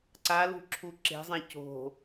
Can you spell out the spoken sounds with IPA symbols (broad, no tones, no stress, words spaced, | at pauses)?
ǀalṳ ǁʰuǁe̤zˤẽ co̤